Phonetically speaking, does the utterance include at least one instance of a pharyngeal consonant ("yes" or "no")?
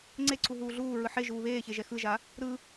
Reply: yes